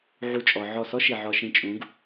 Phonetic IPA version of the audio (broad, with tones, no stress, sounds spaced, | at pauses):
ʕ u˦˨ t͡ʃʼ ɔ˧ ʕ ɔ˦˨ s ɔ˦ ʃ i˨ ʕ ɔ˧ ʃ ĩ˧ t͡ʃʼ ũ˨˦ ɡ